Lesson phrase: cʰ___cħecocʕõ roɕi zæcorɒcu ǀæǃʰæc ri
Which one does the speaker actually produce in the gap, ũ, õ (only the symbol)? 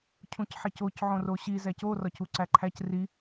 ũ